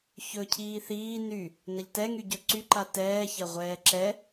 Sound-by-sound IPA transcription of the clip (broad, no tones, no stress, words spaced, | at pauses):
çɵ cʰiːθiː ny | nɐʎtɛŋyɟɵ ǀyǃa tɛːçɐʁʷɛː ǁɛ